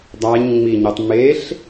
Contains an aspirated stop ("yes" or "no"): no